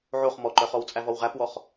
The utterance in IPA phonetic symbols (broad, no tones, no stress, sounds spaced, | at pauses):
ʕ o χ m ɔ ǃ œ χ ɔ w t͡sʼ æ v ɔ w ʁ æ p w ɔ χ